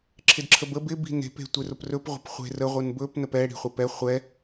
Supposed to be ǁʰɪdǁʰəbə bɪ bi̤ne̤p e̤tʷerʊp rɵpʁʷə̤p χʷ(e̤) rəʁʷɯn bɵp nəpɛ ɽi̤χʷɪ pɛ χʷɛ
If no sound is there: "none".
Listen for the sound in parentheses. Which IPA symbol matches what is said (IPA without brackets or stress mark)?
e̤